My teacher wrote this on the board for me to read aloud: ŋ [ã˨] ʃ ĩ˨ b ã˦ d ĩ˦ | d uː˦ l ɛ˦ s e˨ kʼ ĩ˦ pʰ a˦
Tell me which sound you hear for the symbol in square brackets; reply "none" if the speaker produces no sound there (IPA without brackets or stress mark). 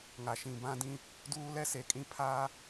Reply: a˨